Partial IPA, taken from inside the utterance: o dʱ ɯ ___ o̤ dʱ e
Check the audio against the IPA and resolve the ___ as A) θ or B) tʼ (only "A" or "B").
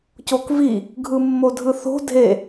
A